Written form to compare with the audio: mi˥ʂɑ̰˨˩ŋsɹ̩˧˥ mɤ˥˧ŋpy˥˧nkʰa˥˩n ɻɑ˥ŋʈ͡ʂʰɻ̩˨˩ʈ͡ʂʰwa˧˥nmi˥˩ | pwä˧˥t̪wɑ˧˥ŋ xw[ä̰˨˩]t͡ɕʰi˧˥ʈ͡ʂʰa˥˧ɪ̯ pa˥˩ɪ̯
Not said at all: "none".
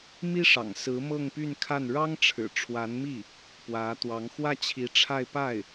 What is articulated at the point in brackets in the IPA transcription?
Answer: ä˥˩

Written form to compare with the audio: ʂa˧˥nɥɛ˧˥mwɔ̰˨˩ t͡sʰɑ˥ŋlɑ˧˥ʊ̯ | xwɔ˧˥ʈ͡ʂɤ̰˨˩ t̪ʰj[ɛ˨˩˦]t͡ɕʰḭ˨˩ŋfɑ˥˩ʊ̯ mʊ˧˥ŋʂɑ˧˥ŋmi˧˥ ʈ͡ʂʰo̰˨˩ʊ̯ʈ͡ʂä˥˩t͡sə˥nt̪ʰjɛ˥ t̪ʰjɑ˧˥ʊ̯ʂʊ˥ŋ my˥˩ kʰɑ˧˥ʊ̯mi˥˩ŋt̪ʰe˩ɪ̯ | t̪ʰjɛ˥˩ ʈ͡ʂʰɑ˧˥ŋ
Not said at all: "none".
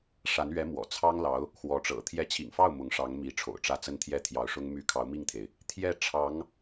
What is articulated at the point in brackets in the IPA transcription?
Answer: ɛ˧˥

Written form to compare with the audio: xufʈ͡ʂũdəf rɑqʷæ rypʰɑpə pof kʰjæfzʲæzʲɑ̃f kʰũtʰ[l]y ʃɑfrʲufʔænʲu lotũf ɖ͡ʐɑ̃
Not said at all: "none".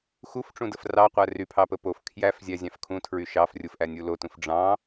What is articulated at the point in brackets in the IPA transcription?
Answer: ɹ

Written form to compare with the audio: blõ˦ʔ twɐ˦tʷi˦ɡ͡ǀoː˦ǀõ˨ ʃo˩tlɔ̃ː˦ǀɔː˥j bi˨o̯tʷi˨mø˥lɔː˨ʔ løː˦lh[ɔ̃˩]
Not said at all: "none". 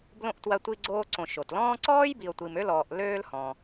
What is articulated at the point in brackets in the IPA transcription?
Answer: ɔ̃˩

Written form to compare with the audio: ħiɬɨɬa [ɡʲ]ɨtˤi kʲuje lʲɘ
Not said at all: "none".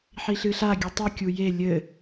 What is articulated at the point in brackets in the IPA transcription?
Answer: ɡʲ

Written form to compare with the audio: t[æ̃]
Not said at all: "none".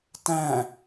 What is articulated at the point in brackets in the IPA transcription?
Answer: æ̃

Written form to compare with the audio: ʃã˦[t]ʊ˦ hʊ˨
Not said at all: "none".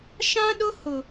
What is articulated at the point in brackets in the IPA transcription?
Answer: ɗ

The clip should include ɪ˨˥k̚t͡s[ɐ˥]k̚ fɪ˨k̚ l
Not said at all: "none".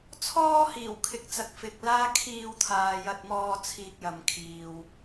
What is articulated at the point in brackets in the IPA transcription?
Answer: ɐ˨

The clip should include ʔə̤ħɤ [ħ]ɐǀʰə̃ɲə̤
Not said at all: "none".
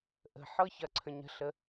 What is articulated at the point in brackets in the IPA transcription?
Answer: ç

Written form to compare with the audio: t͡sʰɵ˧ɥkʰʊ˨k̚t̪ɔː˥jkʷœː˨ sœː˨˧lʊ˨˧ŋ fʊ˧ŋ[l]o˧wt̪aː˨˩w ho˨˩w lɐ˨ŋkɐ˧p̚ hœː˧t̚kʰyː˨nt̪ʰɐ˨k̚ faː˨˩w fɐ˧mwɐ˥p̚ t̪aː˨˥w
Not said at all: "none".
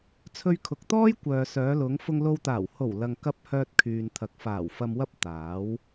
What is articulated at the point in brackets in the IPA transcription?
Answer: l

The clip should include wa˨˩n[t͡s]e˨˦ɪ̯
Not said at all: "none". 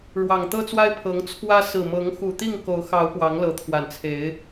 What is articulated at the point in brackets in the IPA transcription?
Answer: t͡sʰ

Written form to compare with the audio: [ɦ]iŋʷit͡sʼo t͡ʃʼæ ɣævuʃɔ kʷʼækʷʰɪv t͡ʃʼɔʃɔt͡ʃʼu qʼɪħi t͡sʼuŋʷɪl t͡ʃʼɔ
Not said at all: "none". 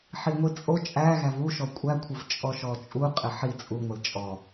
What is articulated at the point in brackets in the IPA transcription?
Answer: ħ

